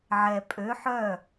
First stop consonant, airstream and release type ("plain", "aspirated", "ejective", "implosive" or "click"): ejective